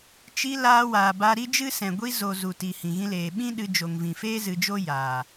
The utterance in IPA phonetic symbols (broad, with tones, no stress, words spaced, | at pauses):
t͡ʃi˧ laː˧waː˨ba˧ɾi˦ d͡ʒɨ˦sɛ̃˨ ɡʷi˧zo˨ zu˨ti˨ hĩ˨ɣĩ˧leː˨ ɓĩ˦ ɗɨ˧ d͡ʒo˨ŋvĩ˨feː˦ zɨ˧d͡ʒo˦ jaː˨